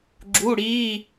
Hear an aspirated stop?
no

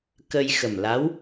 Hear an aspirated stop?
no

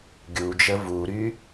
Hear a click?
no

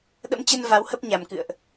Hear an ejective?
no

